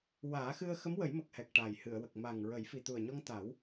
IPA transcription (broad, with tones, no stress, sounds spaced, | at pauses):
w aː˨˩˦ x ɨ˧ ə̯ x ə˧˥ m w ə˨˩˦ j m ə˨˩ k̚ h ɛ˨˩ k̚ ʈ a˨˩ j h ɨ˨˩˨ ə̯ w ə˨˩ k̚ m a˨˩ ŋ ɹ ə˨˩˦ j f i˨˩ t̪ u˨˩ ə̯ ɲ ɔ˧ ŋ t̪ a˨˩˦ w